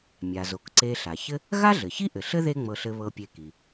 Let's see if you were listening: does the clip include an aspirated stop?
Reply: no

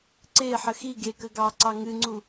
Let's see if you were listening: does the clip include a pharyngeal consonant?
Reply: yes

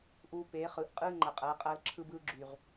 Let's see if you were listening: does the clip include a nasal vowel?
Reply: no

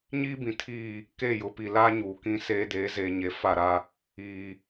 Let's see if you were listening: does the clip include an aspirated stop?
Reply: yes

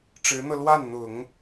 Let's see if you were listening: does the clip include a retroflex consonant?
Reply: yes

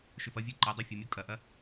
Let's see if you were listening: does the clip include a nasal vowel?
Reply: no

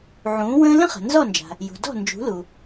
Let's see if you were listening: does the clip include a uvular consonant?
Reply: yes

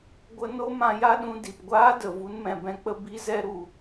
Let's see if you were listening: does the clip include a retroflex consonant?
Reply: no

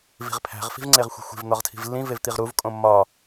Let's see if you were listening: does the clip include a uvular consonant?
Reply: yes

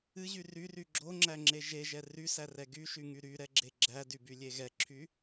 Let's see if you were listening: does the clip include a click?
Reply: yes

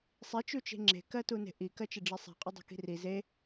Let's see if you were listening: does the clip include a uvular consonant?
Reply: yes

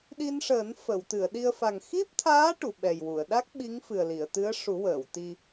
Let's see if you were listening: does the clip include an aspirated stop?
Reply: yes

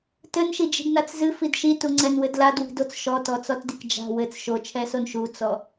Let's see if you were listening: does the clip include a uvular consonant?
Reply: no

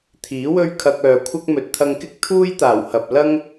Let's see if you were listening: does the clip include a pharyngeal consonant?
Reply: no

